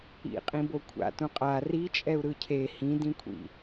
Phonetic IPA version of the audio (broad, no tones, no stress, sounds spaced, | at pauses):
ḭ qʼ ĩ b o kʷʰ a̰ t ũ qʼ a r i t͡ʃʼ ɛ u̯ ɾ ɯ cʰ e h ĩ d ĩ kʷʰ ḭ